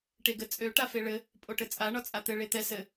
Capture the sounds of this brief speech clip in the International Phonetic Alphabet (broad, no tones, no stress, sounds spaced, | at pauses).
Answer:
ʈ e ɡ ɘ t͡sʼ ø ʈ a f e ɭ ɘ | pʼ o ʈ ɘ t͡sʼ a ɳ ɒ t͡sʼ a t̪ ɘ ɭ e t̪ ɛ s ɘ